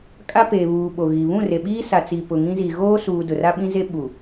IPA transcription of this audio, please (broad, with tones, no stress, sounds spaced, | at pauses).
kʼ a˦ p eː˨ β uː˨ ɓ o˨ ɣ i˨ β ũ˦˨ r e˨ ɓ iː˦ s a˨ t͡s i˨ p ʊ˨ ŋ ĩ˦ z i˨ ɣ oː˦ s uː˨ d ʊ˨ r a˦ ɓ ĩ˦ z e˦ ɓ u˨